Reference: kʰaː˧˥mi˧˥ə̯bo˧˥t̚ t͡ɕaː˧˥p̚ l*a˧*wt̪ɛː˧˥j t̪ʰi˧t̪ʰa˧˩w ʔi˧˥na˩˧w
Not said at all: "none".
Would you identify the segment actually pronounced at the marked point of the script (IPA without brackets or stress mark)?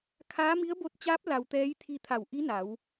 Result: a˧